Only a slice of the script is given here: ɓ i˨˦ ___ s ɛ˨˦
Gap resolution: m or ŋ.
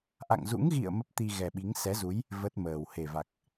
ŋ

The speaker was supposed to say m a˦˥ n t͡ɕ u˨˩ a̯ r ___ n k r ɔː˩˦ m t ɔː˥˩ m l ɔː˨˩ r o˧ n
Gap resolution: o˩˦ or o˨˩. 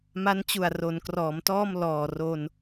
o˩˦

